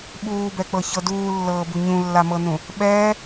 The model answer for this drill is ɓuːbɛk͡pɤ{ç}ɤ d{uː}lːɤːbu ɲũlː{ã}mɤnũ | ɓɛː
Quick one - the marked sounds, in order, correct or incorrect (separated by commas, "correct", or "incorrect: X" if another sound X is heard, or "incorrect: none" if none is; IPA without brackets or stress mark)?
correct, correct, incorrect: a